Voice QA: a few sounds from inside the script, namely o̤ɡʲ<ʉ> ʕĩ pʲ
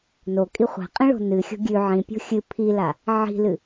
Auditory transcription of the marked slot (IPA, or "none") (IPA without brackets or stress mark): ʉ